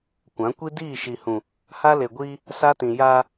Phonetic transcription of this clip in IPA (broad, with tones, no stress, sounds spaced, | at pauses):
kʷ ã˨˦ kʷ i˦ d iː˦˨ ʃ i˨ h ũ˨ | h a˦ l e˨ ɡʷ iː˦ | s a˦ t ĩ˨ j aː˦